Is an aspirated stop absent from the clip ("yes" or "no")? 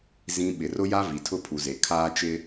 no